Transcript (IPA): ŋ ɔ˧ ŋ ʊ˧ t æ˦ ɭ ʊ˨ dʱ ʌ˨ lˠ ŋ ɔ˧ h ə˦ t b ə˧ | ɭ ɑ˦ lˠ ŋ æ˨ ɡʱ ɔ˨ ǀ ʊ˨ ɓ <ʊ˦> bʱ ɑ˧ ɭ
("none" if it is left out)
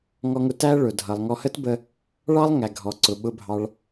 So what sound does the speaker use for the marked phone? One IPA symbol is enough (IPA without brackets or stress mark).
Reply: ʊ˧